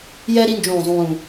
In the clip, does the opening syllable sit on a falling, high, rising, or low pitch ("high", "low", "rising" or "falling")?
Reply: high